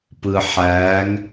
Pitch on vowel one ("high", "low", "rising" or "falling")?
low